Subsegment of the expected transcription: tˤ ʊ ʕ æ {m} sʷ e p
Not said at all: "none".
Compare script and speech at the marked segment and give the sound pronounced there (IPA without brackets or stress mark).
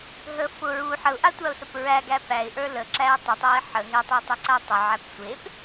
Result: p